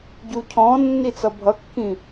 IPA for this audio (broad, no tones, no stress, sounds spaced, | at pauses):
ɟ u cʰ ɔ̃ nː i t͡s ʌ bʱ ʌ kː ĩ